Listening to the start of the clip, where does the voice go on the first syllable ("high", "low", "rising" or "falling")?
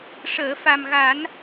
low